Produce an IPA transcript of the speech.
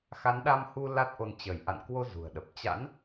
x a˨˦ n ɗ a˧ m h u˧ l a˦˥ t̚ ʔ o˧ n t͡ɕ ə˧˩ j ʔ a̰˧˨ n k w o˧ z ṳ˨˩ ə̯ ɗ ə˨˩ p̚ t͡ɕ a̰˧˥ n

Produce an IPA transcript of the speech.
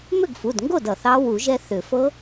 m ʏ˥˩ ɡ f u˩˧˩ d ŋ ɡ o˥˩ d ʌ˩ θ ɑ˦˥ w u˨˩˦ ʒ ɛ˧ θ ʏ˨˩˦ f ɤ˦˥

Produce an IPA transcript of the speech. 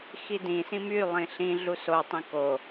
x i d ĩ s ĩ m y lˠ ĩ ɬ ĩ ɮ u s o tˤ ĩ k o

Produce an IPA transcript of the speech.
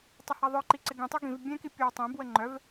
tˤ ɐ h a ðˤ œ ǃ i ǀ ɪ ɡ ĩ tˤ œ ɡ ĩ v bʲ ɛ̃ k i pʲ o w tˤ ɛ̃ b w ə ŋ͡ǃ œ v

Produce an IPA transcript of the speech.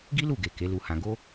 ɡ i˦ l u˦˨ ɡ e˨ k e˨˦ l u˧ h ã˧ ɡ o˦

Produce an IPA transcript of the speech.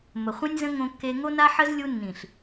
m ə˨ χʷ ĩ˦ nʲ z ə̃˦ ŋ õ˧ kː e˧ ŋ o˦ n a˦ ħ ə˦ z lʲ u˧ nː ĩ˨ ɬ

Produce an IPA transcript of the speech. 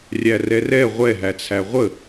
rʲ æ r ɛ r ɛ ʁʷ ɛ ɦ æ t͡sʰ æ ʁʷ ə

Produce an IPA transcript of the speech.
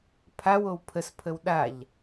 pʰ a w o w pʰ ə s pʰ ə w ɗ a ʎ

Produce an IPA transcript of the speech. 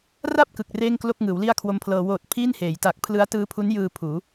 r a˥˩ p̚ k ɯ˨˩ k̚ r eː˥˩ ŋ k l o˥˩ k̚ ŋ ɯː˩˦ w l i˥˩ a̯ kʰ w o˦˥ m pʰ l ɤː˧ w oː˨˩ t̚ pʰ iː˥˩ n h eː˩˦ j t a˨˩ k̚ pʰ l ɯ˦˥ a̯ t ɯː˦˥ pʰ u˦˥ n j ɯː˧ pʰ uː˩˦

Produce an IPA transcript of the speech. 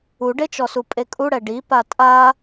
u ɖ e t͡ʃ ɔ s u pʼ e kʼ u ɽ ɛ ɖ i p a tʼ a

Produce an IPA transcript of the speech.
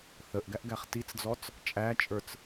θ ə ʔ ɡ æ ʔ ɡ æ χ t i t͡s d͡z ɔ t͡s | t͡ʃʼ æ t͡ʃʼ ə˞ t͡s

